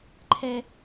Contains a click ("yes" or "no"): yes